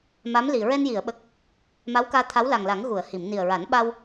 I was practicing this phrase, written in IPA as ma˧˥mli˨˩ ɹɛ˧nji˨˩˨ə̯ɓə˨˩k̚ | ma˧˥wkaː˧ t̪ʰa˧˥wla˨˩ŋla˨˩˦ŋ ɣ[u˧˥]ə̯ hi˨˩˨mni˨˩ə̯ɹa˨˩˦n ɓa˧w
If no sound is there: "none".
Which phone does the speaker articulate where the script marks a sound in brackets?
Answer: u˨˩˨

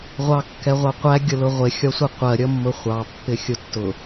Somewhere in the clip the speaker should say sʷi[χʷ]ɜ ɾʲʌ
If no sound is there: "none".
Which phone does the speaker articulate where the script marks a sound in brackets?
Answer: qʷ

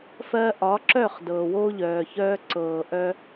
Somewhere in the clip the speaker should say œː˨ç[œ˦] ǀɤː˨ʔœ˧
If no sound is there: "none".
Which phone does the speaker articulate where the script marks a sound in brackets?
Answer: œː˦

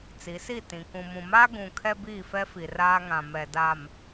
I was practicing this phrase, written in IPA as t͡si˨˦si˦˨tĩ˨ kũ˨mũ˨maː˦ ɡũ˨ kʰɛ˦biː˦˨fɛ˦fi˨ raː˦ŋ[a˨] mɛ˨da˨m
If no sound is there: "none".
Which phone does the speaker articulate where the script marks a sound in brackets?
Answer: ã˨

